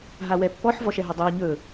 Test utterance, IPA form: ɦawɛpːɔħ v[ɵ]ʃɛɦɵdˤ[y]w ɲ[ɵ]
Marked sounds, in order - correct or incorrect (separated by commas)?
incorrect, correct, correct